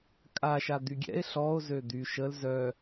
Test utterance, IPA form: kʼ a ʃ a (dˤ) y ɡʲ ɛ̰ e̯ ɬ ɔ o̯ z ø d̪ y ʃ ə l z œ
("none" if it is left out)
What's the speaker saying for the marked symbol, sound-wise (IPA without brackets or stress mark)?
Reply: d̪